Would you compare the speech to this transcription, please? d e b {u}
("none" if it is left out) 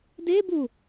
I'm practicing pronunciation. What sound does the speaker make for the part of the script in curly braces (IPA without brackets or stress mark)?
u